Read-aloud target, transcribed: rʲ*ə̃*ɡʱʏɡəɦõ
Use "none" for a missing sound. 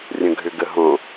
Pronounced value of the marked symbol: ə̃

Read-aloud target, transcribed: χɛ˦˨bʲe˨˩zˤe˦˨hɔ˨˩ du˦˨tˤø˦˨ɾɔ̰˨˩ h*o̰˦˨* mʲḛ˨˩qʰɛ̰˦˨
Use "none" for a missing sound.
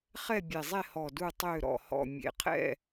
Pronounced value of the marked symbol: ɔ̰˦˨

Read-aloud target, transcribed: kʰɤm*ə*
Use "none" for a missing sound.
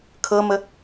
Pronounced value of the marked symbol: ə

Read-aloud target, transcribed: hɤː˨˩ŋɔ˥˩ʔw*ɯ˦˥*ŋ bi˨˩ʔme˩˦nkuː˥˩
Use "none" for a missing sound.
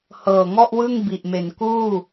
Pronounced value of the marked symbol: ɯ˥˩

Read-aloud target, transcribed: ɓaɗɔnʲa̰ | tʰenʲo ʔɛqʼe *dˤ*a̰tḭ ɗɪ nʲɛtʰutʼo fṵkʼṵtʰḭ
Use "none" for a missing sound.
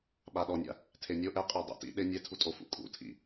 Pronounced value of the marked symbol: dˤ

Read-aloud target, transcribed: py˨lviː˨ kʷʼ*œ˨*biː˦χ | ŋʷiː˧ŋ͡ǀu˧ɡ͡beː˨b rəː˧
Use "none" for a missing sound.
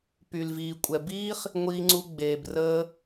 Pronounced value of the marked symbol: ɛ˨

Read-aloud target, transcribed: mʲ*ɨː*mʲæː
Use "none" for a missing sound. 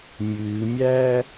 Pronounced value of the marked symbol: ɨː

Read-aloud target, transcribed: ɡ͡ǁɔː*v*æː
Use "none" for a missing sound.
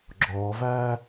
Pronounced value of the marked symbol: v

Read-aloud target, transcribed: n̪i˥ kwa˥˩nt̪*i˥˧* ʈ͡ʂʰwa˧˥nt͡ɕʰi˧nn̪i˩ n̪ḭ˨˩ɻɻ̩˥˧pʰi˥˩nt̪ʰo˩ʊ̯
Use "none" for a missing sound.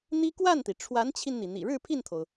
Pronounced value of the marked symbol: i˩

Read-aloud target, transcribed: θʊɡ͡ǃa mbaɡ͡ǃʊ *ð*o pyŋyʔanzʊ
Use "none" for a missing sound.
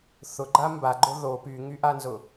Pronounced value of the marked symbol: ð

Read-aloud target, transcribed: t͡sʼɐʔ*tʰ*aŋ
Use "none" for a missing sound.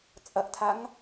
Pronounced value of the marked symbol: tʰ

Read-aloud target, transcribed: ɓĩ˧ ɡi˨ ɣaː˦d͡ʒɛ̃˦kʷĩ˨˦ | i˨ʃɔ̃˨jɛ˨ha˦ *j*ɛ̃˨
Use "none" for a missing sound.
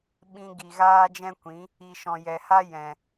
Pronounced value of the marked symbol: j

